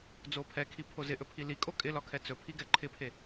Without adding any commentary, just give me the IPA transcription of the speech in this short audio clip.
d͡z o pʰ ɛ kʰ i pʰ o z ɪ ʔ ɵ pʰ i l i kʼ o kʼ ɪ l ɒ kʰ ɛ t͡s ɵ pʰ i ɡ ɛ ǃʰ ɪ pʰ e

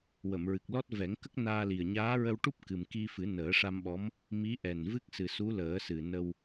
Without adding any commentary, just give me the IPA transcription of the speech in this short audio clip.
w ə˨˩˨ m ɹ ɨ˨˩ k̚ l ɔ˦˥ t̚ v ɛ˨˩˦ ŋ k ə˦˥ k̚ n aː˧ l i˨˩ ə̯ ɲ aː˧˥ ɹ ə˧ w ʈ u˦˥ p̚ k ɨ˨˩ m k i˧ f ɨ˨˩˦ n əː˨˩˦ ʂ a˧ m ɓ ɔ˧˥ m | m i˧˥ ʔ ɛ˨˩ n v ɨ˦˥ k̚ s ɨ˨˩ s u˧˥ l əː˨˩˦ s ɨ˨˩ n ə˧ w

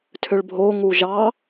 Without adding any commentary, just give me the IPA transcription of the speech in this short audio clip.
tʰ ʏ ɭ bʱ o ŋ u ʒ ɑ

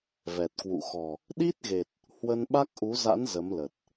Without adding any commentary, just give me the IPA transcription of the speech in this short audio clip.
v ɛ˨˩ t̚ k w ṵ˧˨ x ɔ˨˩ | ɗ i˦˥ t̚ ɣ e˨˩ t̚ | h w ə˧ n ɓ a˦˥ k̚ ʔ u˨˦ z a̰˧˥ n z ə˨˦ m l ə˨˩ t̚

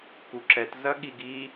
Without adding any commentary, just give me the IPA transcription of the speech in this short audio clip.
k u ǁ ɛ t z ɐ ɠ i ɡ i

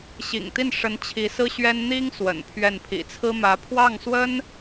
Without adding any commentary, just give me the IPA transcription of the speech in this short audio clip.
ɕ ḭ˨˩ ŋ t̪ i˥˩ n ʂ ə˧˥ n t͡ɕʰ i˧˥ s ɹ̩˥ ɕ ɥ ɛ˥ n n̪ i˥ ŋ s w ə̰˨˩ n pʰ ɥ ɛ˥˩ n pʰ ḭ˨˩ t͡sʰ ɹ̩˥ m ä˧˥ pʰ w ɑ˥˩ ŋ s w ə˥ n

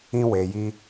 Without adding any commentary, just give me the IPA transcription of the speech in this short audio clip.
ĩ˧ w e˨ j i˧

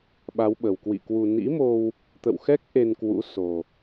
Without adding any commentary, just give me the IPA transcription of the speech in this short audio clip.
ɓ a˨˦ w ɓ ə˨˩ w k w ḭ˧˨ k w u˧ n ḭ˧˥ m o˧ w | t̪ ə̰˧˨ w x ɛ˦˥ k̚ ʔ e˧ n k w ṵ˧˥ s o˨˩

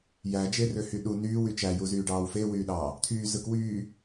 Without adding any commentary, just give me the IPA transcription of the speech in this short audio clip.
j æ d͡ʒ e r ø h y ɗ u n yː w y t͡ʃ æ j u z yː ɖ ɑː w f e w yː ɗ ɑː | t̪ʰ yː z ɯ k w yː

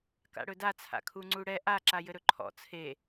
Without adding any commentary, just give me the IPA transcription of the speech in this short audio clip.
k a̰ ɽ ɵ d a t͡sʰ a̰ kʰ u ŋ͡ǀ u ɽ ɛ ʔ a ǁ a j ɘ ɾ ɵ ǃʰ ɔ̰ t͡sʰ e

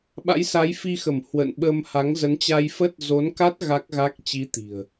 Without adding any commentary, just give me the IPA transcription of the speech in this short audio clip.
ɓ a̰˧˥ j s a˨˦ j f i˧ x ə˧˩ m h w ə̰˧˨ n ɓ ə˧ m h a˨˦ ŋ z ə˨˦ n t͡ɕ a˧ j f ə˦˥ t̚ z o˨˦ n k a˦˥ t̚ ɣ a˦˥ k̚ ɣ a˦˥ k̚ t͡ɕ i˨˦ t̪ i̤˨˩ ə̯

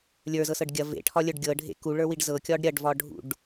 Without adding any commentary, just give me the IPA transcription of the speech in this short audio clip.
lʲ ə˞ z ɤ s ɤ ɖ ɡʲ ɐ v ḛ ʈʰ ɒ lʲ ə˞ ɖ ɡʲ ɤ ɖʱ ḛ k u ɭ ə˞ w i ɖ z ɤ kʲ ɒ ɖ ɾʲ ɐ ɖ v ɒ ɖʱ ṵ ɖ

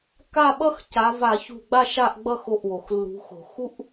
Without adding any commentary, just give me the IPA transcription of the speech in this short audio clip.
k a˥˨ ɓ ʌ˥ x c a˨˦ v a˧˩˧ ç ṳ˧˩ ɡ͡b a˥˨ ʃ a˥˨ ʔ ɡ͡b ʌ˥˨ x o˧˩ ʔ w o˩ x lː ṳ˨˦ x o̤˧˩˧ x u˥ ʔ

